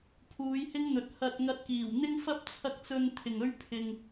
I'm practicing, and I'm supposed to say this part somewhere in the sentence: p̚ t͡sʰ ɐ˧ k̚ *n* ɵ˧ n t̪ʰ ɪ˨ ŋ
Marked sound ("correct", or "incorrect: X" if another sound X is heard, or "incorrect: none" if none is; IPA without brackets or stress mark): incorrect: t͡s